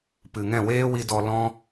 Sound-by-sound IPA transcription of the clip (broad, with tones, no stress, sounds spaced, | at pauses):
p ɨ˨ ŋ ɛ̃˦˨ w eː˦ w i˧ d ɔ˧ l ɔ̃˦